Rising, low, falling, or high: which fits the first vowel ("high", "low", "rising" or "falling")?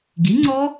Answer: rising